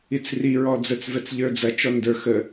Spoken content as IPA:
i t͡s r i ɹ ɔ d͡z ə t͡s v ɛ t͡s ʎ ə˞ d͡z ɐ t͡ʃ ɔ n d ə˞ x ə

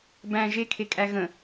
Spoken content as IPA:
b æ̃ ʒ e kʰ e kʼ æ ɣ ə̃

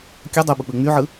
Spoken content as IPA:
kʲ ɯ dˤ u ɓ u k͡p ɯ ŋ͡m y ʕ ɯ

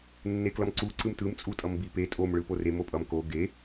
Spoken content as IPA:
nː e k l ʌ m ǀ u ǀ ɯ m t ɯ m t͡sʼ u tʼ ʌ m b i p e tʼ o m ɭ ɯ p o r e m o pʼ ʌ m k o ɡ e

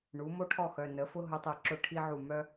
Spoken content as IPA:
ɳ u˩˥ m o˥ ʈʰ ɔ˥˩ x œ˩˧˩ n ə˩˥ f ʊ˥ ɦ ʊ˧˥ tˤ ɨ˧˩ ǁ ʊ˥˩ ʈʰ i˥ ʕ u˥˩ m œ˥

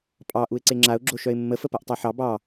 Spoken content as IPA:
pʼ ɑ ʔ u ɪ̯ ǀ e ŋ͡ǁ a ʊ̯ ɡ͡ǁ o ʃ œ ɪ̯ mː ə f ə p a ʔ tˤ ɑ ħ ɑ b ɑ

